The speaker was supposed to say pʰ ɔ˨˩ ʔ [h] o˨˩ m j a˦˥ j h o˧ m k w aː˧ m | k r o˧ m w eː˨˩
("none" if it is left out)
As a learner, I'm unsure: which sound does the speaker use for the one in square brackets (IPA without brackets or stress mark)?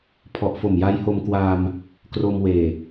f